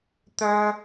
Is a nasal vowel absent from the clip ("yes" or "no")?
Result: yes